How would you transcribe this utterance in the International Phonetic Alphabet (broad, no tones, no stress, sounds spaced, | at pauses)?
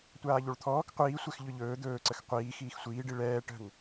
tʷ aː ʎ o ɭ t̪ʰ ɔː k qʷ iː sʷ ɛ x ʎ ɵ ʎ ɵː d̪ ɵː ǀ ə x qʷ iː x iː x sʷ iː ɖ i ɭ ɛː ʈ ə̤ ŋ